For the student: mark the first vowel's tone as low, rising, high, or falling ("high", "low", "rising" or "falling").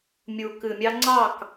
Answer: low